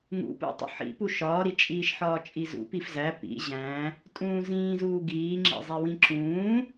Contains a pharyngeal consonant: yes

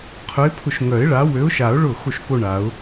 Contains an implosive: no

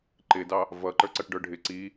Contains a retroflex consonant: yes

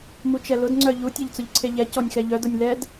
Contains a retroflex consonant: no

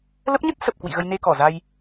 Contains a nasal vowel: no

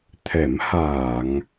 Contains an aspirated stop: yes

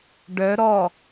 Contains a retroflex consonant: yes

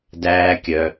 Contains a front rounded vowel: yes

